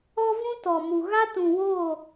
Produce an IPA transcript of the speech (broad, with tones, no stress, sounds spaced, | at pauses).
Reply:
ɔ˦ v ũ˦ t ɔ˨ m u˨ ɣ a˦ t ũ˨ w oː˦˨